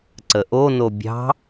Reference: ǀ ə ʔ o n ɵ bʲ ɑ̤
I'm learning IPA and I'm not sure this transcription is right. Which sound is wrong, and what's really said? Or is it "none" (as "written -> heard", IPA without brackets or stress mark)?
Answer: ɵ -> o